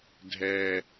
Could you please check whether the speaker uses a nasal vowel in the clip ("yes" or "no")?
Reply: no